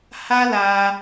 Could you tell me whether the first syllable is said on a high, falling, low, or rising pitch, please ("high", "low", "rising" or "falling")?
high